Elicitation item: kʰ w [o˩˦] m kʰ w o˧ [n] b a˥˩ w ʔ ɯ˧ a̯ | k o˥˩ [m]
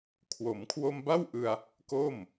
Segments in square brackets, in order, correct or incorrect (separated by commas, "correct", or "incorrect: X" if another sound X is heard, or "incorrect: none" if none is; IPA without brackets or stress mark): correct, incorrect: m, correct